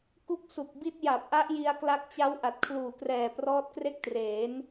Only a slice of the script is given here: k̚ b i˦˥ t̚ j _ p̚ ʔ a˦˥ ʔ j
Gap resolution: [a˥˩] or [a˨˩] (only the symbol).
a˨˩